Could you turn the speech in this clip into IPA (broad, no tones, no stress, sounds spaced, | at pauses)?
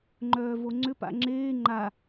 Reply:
ŋ͡ǃ œː v o ŋ͡ǀ ʏ p a̰ ŋ͡ǁ eː ŋ͡ǃ a